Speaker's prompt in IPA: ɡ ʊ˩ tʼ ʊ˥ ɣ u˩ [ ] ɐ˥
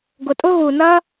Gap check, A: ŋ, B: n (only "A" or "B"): B